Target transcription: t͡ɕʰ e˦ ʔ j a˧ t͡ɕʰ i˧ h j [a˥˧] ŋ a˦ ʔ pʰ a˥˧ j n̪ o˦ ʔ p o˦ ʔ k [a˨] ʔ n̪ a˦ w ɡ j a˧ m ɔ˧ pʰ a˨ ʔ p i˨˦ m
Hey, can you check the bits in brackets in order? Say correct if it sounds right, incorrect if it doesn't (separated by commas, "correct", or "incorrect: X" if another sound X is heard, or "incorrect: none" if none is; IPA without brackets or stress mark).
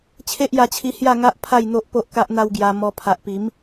correct, incorrect: a˦